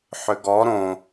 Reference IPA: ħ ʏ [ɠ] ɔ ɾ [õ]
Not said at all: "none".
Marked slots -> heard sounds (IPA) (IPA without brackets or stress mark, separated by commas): ɡ, õ